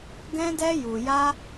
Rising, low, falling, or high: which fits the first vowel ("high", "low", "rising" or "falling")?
high